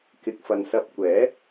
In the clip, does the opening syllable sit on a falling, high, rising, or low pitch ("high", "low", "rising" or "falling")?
low